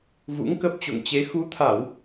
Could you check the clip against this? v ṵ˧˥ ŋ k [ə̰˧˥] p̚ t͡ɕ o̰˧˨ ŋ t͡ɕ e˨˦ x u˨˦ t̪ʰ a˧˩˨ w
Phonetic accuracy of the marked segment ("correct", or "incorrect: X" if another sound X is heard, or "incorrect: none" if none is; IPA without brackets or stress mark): incorrect: ə˦˥